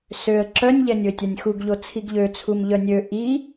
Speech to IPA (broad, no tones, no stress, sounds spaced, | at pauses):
s ø ə̯ ǁ œ nʲ ʎ ɛ nʲ o ɪ̯ tʲ a nʲ x u ɡ ʎ o t͡sʰ i ɡ ʎ ø t͡sʰ u m ʎ œ nʲ ø ʔ i